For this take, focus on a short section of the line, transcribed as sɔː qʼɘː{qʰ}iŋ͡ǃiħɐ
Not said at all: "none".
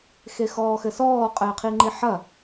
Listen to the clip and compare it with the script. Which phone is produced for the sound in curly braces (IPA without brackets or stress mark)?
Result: qʰ